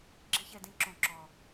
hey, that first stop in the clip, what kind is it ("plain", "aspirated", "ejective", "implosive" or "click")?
click